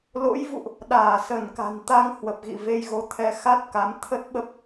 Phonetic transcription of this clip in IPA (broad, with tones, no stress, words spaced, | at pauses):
lo̰˧˥jvṵ˧˨ʔ | ɗaː˧˩sə˧˩nka̤˨˩nt̪a˧ŋ hwə˨˩p̚ɣḭ˧˨ ve˧jɣo˨˦ t̪ʰɛ˧xa˦˥t̚ka˨˦m t̪ʰə˦˥t̚ɓə˦˥p̚